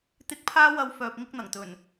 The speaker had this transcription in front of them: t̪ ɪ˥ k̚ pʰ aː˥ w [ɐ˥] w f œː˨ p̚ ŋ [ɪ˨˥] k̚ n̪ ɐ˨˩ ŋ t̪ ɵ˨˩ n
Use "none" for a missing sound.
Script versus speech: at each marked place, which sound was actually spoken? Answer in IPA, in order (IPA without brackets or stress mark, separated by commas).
ɐ˧, ɪ˥